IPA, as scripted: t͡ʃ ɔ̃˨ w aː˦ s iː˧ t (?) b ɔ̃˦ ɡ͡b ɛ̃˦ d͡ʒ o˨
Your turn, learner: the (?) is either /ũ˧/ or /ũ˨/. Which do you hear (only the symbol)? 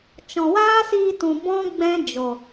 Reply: ũ˨